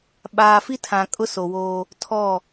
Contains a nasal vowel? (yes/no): yes